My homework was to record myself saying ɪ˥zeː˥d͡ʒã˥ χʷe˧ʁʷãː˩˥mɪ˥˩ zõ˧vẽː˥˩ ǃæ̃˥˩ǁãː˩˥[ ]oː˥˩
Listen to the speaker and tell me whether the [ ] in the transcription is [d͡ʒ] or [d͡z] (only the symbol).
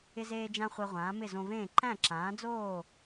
d͡z